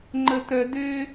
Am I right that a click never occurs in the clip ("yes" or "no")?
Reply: no